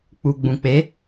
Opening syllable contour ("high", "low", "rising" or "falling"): low